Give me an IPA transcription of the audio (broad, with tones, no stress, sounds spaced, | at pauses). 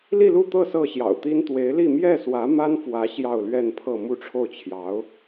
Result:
l i˥˧ l u˥˧ t̪ ɤ˥˧ s ɤ˥˩ ɕ j ɑ̰˨˩ ʊ̯ t̪ i˥ n t̪ w e˧˥ ɪ̯ l i˥˧ m j ɛ˥˩ s w ä˧˥ m a˥ n f w ä˧˥ ɕ j ɑ˥˧ ʊ̯ l ɥ ɛ˥˧ n pʰ ɤ˥˧ m u˥˧ ʈ͡ʂʰ o˥˩ ʊ̯ t͡ɕʰ j ɑ˧˥ ʊ̯